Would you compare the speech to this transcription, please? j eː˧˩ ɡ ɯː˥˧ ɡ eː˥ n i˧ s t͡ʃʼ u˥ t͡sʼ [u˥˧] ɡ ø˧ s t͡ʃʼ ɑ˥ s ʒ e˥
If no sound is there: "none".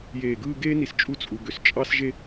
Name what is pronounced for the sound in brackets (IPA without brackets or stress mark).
u˧